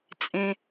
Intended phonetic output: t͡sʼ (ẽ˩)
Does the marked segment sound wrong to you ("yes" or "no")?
no